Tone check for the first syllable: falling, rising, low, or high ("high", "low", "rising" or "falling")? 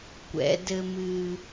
rising